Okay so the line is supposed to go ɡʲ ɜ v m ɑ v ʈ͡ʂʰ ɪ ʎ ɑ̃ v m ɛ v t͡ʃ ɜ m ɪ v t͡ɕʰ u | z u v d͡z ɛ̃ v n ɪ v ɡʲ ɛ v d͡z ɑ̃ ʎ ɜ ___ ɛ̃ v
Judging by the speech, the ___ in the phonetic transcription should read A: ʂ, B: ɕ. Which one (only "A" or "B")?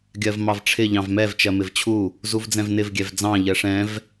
A